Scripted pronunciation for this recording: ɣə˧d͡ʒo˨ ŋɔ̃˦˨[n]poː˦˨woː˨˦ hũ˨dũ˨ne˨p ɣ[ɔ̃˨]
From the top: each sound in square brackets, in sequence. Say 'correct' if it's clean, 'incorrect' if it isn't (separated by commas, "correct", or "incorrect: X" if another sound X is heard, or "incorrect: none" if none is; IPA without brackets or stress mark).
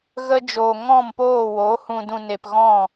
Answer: incorrect: m, incorrect: ɔ̃˦˨